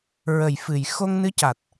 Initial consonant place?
alveolar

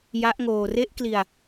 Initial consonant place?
palatal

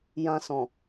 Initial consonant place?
palatal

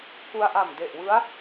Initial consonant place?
velar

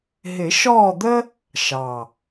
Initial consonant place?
glottal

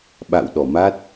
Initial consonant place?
labial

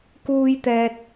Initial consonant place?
velar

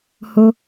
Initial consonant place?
glottal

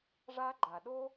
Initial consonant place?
retroflex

